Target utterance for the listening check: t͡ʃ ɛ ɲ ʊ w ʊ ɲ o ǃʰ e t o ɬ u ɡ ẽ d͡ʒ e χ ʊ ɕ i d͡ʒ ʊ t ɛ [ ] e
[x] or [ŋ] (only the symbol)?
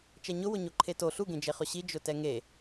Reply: ŋ